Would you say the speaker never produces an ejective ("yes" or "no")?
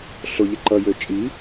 no